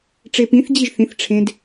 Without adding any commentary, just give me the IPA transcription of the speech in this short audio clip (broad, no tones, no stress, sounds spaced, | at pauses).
ʈ͡ʂ e p ĩ θ d͡ʑ i ʒ θ ĩ θ ʈ͡ʂʰ ẽ d